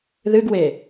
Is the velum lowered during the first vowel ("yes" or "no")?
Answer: no